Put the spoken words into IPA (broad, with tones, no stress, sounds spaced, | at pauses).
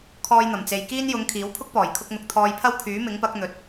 kʰ ɔː˧ j n̪ ɐ˨˩ m t͡s e˨ j k iː˥ n j ʊ˨˧ ŋ kʰ iː˨˥ w pʰ ʊ˥ k̚ p ɔː˨˩ j kʰ ʊ˧ k̚ n̪ ʊ˨ k̚ t̪ʰ ɔː˧ j pʰ ɐ˥ w kʰ yː˨˥ m ɪ˨˥ ŋ p ɐ˨˥ k̚ n̪ ɵ˨ t̚